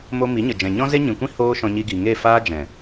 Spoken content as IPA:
m o˧ m i˨˦ ɲ ə˨ d͡ʒ ɛ̃˨ ɲ ɔ̃˦ z e˦ ɲ ĩ˨ kʷ ĩ˦ h oː˦ ʃ ɔ̃˧ ɲ i˧ ɡ i˨ ŋ e˦˨ f aː˦ d͡ʒ ɛ̃˨

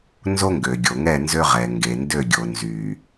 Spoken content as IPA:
n z o˦ ŋ ɡ ø˨ ɡʲ o˨ ŋ ɛ˦˨ n z ø˦ ʁ ɛ˨ ŋ ɡ e˨ n d ø˦˨ ɡʲ o˨ n z y˨

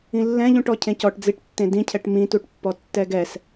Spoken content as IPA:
ĩ lː ɛ̃ ʎ ũ ʈ ɔ cʰ ẽ c ɔ ʈ d͡z i ʈ tː ẽ d ĩ cʰ ɛ ʈ m ĩ t u ʈ pː ɔ tː ɛ ɡ ɛ s

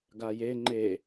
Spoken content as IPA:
ɡ a j e ŋ͡ǃ e

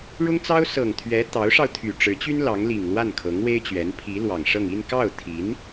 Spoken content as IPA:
ɻ ʊ˥ ŋ t͡s ɑ˥ ʊ̯ s ɤ˨˩ ŋ t̪ʰ ɥ ɛ˧˥ t̪ ɑ˧˥ ʊ̯ ʂ ɑ˧ ʊ̯ t̪ʰ y˨˩ ʈ͡ʂ ɻ̩˧˥ t͡ɕ y˥ n l ɑ˧˥ ŋ l i˨˩ ŋ l w a˥˩ n kʰ ɤ˧˥ ŋ w e˥ ɪ̯ t͡ɕ ɥ ɛ˧˥ n pʰ i˧˥ l w ɑ˨˩ ŋ ʂ ɤ˥˧ ŋ i˥˧ n k ɑ˥˩ ʊ̯ t̪ʰ i˧˥ n

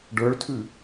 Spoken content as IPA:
ɖ ə˞ ɭ tʰ ʉ

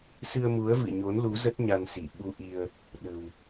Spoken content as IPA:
s ɨ˧ ə̯ m u˨˦ ə̯ v ɨ̰˧˨ ɲ o˨˦ n l u˨˦ z ə˦˥ t̚ ɲ a˧ n s i˧˩ ɓ u˧ ʔ i˧ ə̯ | ɗ ə̤˨˩ w

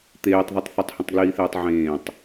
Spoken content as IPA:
t̪ eː tˤ ð i tˤ θ ə tˤ h ə̃ tˤ ɡ l iː θ eː tˤ ʕ ẽː tˤ

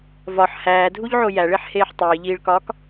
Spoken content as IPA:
v ɒ ħ h æː dʱ u ʎ ʕ o j æ ɭ e ħ h eː ħ tˤ iː ʎ iː ɭ k ɒː k

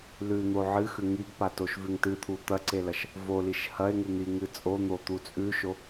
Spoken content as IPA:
l ʉ n̪ o ʕ ɨ x ʉ ŋ i ɡ p a t o ʃ v ʉ ŋ t ɨ t̪ʰ u t̪ ɐ ǀ e l ɐ ʃ | v o l i ʃ h ɐ e̯ ŋ u n̪ i ŋ ɨ t͡sʼ o n̪ o t̪ u t͡sʼ ʉ ʃ o

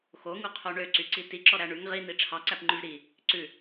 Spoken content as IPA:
x o ŋ u qʰ o ɳ ø ǀ y ǀ i t i ǁ ɔ ɾ æ ɳ ʉ ŋ ʁ i n̪ i ʈ͡ʂʰ ɑ ǀ æ p ŋ͡ǃ ʉ v ɾ i | ǀ ʉ

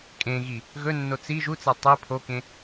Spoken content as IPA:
kʼ ẽ ɣ i | ɣ ɵ nː o t͡s i ʒ u t͡s a tˤ ɨ pʰ o k ẽ

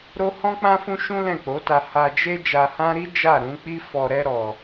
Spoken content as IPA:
ɾ o˦ h ɔ̃˦ k͡p ã˦ f ũ˦ ʃ ũ˦ l ɛ̃˦˨ k͡p o˨˦ t a˧ h a˧ d͡ʒ e˦ d͡ʒ a˧ h ã˦ ɾ i˦ d͡ʒ a˦˨ ɾ ũ˨˦ k͡p i˦ f ɔ˧ ɾ ɛ˦ ɾ ɔ˧

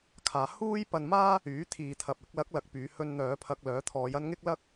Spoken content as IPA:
kʰ aː˨˧ h uː˥ j p ɐ˧ n m aː˥ | yː˨˥ t̪ʰ iː˨ t̪ʰ ɐ˨ p̚ ɪ˧ k̚ l ɐ˨˥ k̚ l ɐ˨˥ k̚ p yː˨˧ h ɵ˧ n n̪ œː˨˧ pʰ ɐ˧ k̚ l œː˨˥ t̪ʰ ɔː˨˧ j ɐ˥ n ŋ ɪ˥ k̚ l ɐ˥ k̚

